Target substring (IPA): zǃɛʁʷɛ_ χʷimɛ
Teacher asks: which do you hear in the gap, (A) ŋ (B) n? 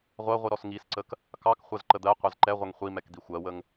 A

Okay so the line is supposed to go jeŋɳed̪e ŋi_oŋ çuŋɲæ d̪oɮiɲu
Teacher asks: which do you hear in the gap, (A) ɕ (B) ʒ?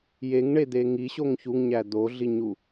A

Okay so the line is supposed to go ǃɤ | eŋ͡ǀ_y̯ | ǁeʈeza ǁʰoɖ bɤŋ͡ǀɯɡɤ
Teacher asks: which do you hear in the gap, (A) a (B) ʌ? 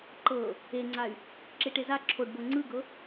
A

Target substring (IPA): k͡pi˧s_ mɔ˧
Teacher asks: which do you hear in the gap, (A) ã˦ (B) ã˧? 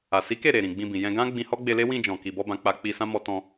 A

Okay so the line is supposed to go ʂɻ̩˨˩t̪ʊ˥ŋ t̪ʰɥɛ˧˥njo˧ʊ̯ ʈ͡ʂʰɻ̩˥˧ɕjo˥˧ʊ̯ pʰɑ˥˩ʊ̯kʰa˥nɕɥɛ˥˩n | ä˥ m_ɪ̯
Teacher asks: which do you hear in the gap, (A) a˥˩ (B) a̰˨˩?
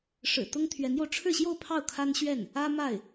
A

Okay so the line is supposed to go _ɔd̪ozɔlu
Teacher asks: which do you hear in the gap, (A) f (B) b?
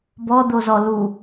B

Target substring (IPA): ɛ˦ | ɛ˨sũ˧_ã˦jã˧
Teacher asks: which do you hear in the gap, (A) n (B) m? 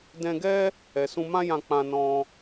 B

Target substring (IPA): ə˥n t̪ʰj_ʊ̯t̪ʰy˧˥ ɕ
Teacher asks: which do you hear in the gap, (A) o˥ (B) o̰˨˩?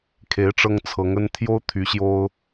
A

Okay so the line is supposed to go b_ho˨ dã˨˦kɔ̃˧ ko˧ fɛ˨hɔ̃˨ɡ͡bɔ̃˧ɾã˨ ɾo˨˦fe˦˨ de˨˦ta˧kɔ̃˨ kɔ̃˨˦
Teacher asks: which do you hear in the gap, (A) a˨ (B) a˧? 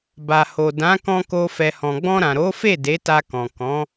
A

